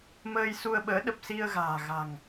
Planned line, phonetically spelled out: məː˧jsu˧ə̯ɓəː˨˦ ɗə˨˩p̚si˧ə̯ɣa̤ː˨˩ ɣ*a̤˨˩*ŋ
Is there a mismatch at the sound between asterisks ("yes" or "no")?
no